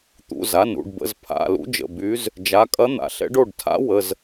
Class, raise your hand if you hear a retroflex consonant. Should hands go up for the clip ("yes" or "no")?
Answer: yes